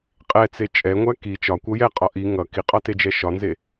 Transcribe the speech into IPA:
qʼɛt͡se t͡ʃʼɛŋʷæ ki t͡ʃɒkʷʌ jɛqʼɒ ʔi ŋʌ kiqʼɒted͡ʒɛ ʃɒnze

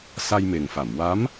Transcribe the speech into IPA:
sa˧jme˨˩ŋfa˨˩˨m wa˧˥m

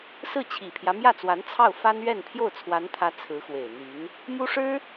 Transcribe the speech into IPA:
sɹ̩˥˩t͡ɕʰi˨˩pʰjä˦ mjä˥˩t͡swa˧˥n t͡sʰɑ˥˩ʊ̯ fa˥nɥɛ˥˧n pʰjo˥˩ʊ̯t͡sʰwa˧˥nt̪ʰä˧˥ t͡sʰɹ̩˧˥xwe˨˩ɪ̯ n̪y˧˥n | mu˥ʂɻ̩˥

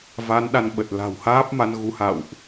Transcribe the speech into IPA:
va˨˦nɗa˧nɓə˨˩t̚ la̤˨˩whaː˦˥p̚ma˧n ɣu˨˦ha̰˧˨wʔ

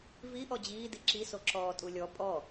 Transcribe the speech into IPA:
vi ʔɔd͡ʑiː diǁi soǁɔːtʼulʲɔ pʼɔ

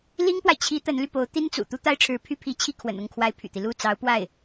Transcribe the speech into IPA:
li˥ŋpwa˨ɪ̯t͡ɕʰi˧˥ t̪ə˧˥nly˧po˧˥ʊ̯ t̪i˥nt͡sṵ˨˩ t̪u˥t̪a˥ɪ̯ʈ͡ʂʰɻ̩˧˥ pʰy˥pʰi˧˥t͡ɕʰi˥˩ kʰwə̰˨˩nʊ˥˩ŋkʰwa˧˥ɪ̯ pʰy̰˨˩t̪i˦lu˥˩ t͡sɑ˧˥ʊ̯pwa˥˩ɪ̯

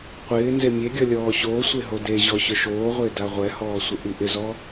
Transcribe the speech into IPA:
qʷɪː nzemʲeɡʲɔ lʲɔːɕoːsʷe ɦodeʑɔ ɕʊʃoːʁʷɪː daʁʷɛhɔː sʷɪʔiʔɪzɔ

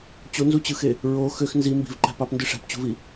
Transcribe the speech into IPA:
t͡ɕonzut͡ɕɯxe | ɹo xøx nzi mbi̤vǃæ̤ pɑpndɯ ʂæ̤pt͡ɕṳvi

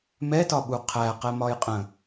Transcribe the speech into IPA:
mɛtɒɓu qʰæqɛmɒj qʼə̃

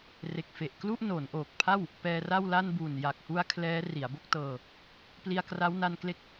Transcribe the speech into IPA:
re˨˩k̚fe˨˩ʔ klu˥˩ʔnoː˩˦nʔoː˨˩k̚pʰa˥˩w | pɛː˧ra˥˩wla˥˩n buː˨˩nja˨˩k̚hu˧a̯ kʰlɛː˦˥ ri˩˦a̯bo˥˩k̚ tɤː˧ | pli˧a̯kra˦˥wna˧nkle˦˥k̚

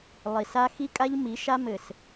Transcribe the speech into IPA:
lˠi˨ sa˦ xi˦kʼa˦ʎmi˨˦ ʃa˦mɘ˨s

